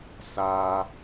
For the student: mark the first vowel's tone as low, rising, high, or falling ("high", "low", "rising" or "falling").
high